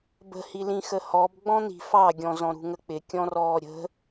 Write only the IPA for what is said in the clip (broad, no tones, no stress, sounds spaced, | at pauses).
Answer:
b ə̤ h i l ĩ x ə h ɔ b ɡ͡b ɔ̃ n̪ i̤ f ɑ ɡʲ ɔ̃ z ɔ̃ ɾ ṳ ŋ ə k͡p ɪ kʲ ɔ̃ r ɔː ɾʲ ə̤